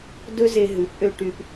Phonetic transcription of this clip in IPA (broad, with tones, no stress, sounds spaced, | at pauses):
d ɵ˦ z e˧ ɦ ʉ˨˦ p ʔ ø˧ ʈ y˧ p